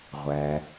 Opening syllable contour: low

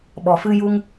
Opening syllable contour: low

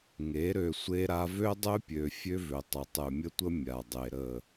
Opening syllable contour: rising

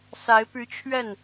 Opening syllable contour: rising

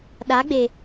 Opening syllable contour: rising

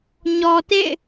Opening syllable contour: low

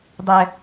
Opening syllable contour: high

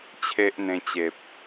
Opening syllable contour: high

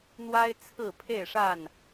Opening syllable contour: high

